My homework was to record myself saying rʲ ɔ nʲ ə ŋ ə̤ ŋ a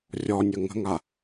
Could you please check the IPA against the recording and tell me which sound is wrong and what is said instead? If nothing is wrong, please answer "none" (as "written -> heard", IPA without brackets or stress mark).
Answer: none